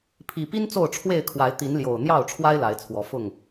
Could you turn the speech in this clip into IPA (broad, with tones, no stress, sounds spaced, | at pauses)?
pʰ i˨˩ p i˦ n t͡s o˥˨ ʊ̯ ʈ͡ʂʰ w e˥˨ ɪ̯ kʰ w a˨˦ ɪ̯ t̪ i˨˦ n l j o˨˩ ʊ̯ n̪ j ɑ˥˨ ʊ̯ ʈ͡ʂʰ w a˦ ɪ̯ l a˨˦ ɪ̯ t͡sʰ w ɔ˨˦ f ʊ˥˨ ŋ